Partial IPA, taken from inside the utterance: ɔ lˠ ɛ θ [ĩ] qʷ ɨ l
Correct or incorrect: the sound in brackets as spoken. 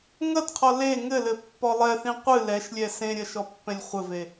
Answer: correct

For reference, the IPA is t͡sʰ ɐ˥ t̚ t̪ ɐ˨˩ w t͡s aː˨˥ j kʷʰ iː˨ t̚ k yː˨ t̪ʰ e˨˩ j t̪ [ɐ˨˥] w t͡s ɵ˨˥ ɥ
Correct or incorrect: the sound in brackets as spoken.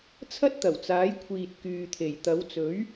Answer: correct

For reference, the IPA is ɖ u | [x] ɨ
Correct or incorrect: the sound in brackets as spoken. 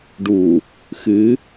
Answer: correct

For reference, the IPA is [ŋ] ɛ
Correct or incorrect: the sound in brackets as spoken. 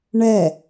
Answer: incorrect: ɳ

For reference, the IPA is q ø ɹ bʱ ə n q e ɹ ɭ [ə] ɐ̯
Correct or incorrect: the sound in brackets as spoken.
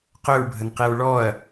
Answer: incorrect: ɔ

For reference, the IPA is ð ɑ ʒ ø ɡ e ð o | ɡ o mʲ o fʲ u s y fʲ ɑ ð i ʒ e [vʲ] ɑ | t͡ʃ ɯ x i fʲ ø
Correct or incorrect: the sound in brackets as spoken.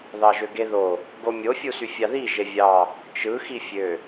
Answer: correct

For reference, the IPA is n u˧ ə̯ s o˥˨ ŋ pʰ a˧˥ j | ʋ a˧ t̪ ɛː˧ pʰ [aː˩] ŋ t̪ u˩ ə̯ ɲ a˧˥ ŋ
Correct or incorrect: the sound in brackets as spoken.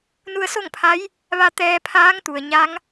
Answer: incorrect: aː˧˥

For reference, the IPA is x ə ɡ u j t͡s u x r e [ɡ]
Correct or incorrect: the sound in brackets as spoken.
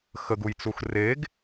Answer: correct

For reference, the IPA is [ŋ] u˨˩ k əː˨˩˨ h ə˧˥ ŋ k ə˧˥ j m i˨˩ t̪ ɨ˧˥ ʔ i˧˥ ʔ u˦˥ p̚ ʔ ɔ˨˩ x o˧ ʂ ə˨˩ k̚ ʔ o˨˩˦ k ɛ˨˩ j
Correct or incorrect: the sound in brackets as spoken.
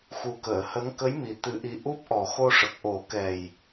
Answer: incorrect: x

